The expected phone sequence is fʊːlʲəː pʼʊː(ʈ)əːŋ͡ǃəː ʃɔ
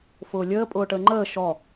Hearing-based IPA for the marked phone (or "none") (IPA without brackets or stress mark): ʈ